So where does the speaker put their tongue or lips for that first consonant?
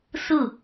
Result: tongue tip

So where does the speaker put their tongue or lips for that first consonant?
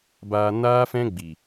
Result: lips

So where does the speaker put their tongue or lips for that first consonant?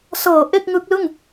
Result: tongue tip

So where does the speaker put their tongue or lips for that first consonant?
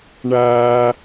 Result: retroflex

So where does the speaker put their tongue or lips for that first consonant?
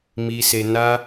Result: lips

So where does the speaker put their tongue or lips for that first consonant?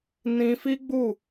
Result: tongue tip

